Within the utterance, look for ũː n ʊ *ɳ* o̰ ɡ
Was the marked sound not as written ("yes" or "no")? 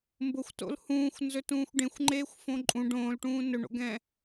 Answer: no